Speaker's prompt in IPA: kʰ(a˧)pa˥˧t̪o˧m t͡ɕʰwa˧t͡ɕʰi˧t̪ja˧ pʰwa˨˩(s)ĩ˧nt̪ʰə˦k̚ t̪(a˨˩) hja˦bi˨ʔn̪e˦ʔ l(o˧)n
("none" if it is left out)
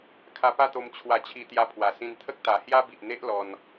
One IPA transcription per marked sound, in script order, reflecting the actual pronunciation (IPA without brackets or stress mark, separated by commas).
a˧, s, a˨˩, ɔ˧